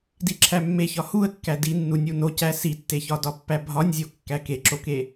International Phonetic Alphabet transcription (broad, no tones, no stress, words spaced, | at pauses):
diǁʰæmːeçɒ huə̯kːæ dinːunʲu nocæ sitːeçɒdɒ pːæbʱɒnʲzʲo kːækeǁoke